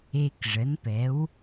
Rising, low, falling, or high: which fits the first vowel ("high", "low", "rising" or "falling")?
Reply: low